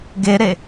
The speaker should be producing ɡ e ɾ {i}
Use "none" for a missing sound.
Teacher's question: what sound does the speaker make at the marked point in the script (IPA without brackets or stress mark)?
e